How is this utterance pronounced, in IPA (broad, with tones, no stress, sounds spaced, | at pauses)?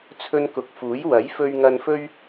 t͡sʰ ɵ˧ n k ʊ˨ k̚ f uː˨˥ j w ɐ˨˥ j f ɵ˧ ɥ ŋ ɐ˧ n f ɵ˥ ɥ